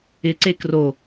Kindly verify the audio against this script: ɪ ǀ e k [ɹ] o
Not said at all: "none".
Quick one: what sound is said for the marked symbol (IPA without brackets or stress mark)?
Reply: r